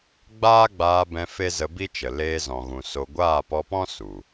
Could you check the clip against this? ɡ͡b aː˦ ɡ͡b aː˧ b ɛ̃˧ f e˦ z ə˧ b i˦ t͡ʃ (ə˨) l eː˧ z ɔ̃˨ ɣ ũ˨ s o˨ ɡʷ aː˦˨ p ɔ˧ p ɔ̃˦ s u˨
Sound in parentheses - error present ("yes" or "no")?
no